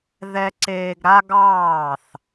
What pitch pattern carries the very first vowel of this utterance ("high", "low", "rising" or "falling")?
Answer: high